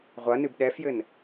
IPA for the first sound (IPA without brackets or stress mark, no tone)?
ʁʷ